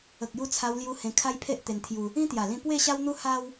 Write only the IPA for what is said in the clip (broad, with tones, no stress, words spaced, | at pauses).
ə˨k̚ju˧t͡sʰa˧wlju˧ hẽ˧kʰa˦jpʰe˦ʔ t̪e˧nt̪ʰju˧ | ĩ˦t̪ja˨˩lĩ˧ pwe˥˧ɕa˦wn̪u˦ ha˦w